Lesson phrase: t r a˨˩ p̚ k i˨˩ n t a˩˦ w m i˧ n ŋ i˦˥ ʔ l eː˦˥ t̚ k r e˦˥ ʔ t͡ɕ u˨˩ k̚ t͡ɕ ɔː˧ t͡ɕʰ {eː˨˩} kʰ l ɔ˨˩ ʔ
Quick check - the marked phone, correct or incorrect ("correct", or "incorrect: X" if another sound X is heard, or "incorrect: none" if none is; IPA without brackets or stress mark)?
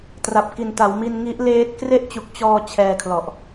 incorrect: ɛː˨˩